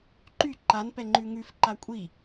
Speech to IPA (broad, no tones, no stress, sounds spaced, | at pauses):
ǃ y ǃ a n p ɛ ŋ͡ǃ ʉ ŋ ʉ f ǃ a kʷʼ i